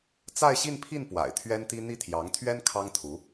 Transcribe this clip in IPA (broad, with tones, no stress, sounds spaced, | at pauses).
t͡s a˥˧ ɪ̯ ɕ i˥˧ n pʰ i˥˩ n p w a̰˨˩ ɪ̯ t̪ʰ ɥ ɛ˥ n t̪ i˥ n̪ i˥˩ t̪ʰ j ɑ˧˥ ŋ t̪ʰ ɥ ɛ˥ n kʰ ɑ˥ ŋ t̪ʰ u˧˥